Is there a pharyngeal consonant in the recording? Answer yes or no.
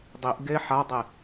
yes